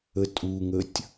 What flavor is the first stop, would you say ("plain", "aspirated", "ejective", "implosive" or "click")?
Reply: ejective